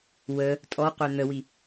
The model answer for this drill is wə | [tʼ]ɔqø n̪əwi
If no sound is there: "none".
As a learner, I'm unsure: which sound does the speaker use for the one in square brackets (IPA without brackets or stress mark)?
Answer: tʼ